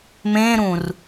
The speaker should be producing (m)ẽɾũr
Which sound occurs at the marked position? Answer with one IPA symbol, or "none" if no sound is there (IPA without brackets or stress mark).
m